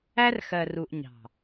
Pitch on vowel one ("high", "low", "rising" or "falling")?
high